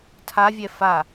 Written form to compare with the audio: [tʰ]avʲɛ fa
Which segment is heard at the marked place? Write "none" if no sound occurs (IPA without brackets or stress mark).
tʰ